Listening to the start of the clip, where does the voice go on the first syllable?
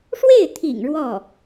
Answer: falling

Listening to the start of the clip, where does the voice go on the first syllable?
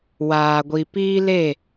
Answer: low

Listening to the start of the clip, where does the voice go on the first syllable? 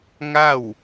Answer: falling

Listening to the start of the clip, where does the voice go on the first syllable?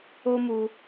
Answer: high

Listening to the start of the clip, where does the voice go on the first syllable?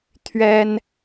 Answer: high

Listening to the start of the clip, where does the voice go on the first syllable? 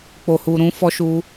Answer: low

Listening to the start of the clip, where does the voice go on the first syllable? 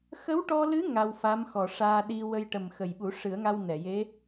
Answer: rising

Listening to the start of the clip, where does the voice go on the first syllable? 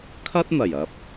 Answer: high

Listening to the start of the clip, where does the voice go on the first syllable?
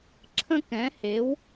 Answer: high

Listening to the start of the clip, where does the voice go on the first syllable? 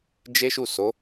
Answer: high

